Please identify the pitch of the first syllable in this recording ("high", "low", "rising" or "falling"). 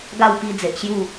falling